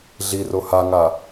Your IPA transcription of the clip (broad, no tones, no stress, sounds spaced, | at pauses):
ɮ i r o h a ŋ a